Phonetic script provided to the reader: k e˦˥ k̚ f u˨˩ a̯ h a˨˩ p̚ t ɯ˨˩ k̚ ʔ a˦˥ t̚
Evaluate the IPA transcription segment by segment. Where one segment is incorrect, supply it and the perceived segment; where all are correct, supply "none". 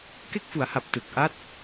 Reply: u˨˩ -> u˩˦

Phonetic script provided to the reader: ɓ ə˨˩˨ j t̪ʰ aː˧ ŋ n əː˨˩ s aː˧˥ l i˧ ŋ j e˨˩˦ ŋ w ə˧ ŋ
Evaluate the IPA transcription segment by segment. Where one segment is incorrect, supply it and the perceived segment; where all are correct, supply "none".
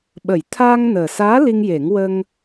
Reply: none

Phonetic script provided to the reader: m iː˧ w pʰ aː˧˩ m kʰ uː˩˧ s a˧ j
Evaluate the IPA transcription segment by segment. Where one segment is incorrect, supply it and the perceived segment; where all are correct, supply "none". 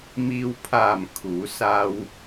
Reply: j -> w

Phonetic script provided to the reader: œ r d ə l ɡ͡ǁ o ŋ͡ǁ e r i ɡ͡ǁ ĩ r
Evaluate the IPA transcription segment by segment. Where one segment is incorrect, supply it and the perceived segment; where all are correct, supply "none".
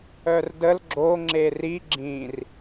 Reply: none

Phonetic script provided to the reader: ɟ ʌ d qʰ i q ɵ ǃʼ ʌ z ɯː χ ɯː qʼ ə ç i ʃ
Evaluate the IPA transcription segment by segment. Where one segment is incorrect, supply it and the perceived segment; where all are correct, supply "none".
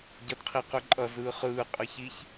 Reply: ʃ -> ç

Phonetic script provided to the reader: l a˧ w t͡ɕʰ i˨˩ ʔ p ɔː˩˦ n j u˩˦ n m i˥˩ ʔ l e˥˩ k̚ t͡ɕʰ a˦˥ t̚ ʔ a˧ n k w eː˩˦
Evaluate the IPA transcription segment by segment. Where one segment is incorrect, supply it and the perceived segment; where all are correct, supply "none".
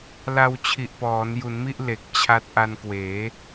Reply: e˥˩ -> e˨˩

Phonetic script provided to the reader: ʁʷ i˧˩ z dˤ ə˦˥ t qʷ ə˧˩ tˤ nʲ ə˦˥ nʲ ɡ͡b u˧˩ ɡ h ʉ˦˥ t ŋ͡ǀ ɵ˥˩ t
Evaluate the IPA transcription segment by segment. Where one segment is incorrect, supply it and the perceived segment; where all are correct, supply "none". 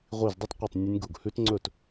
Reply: ɡ͡b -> ɡ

